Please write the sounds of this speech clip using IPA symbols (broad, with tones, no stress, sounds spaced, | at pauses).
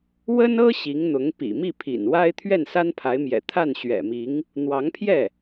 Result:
w ə˥ n ɤ˥ ɕ i˧˥ ŋ n̪ ʊ˧˥ ŋ p ḭ˨˩ m i˥˩ pʰ ḭ˨˩ n w a˥ ɪ̯ t̪ʰ ɥ ɛ˥˩ n s a˥ n pʰ a˧˥ ɪ̯ m j ɛ̰˨˩ t̪ʰ a˥˩ n ɕ ɥ ɛ̰˨˩ m i˧˥ ŋ | n̪ w ɑ˧˥ ŋ pʰ j ɛ˥˩